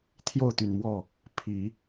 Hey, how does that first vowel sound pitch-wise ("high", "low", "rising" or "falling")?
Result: falling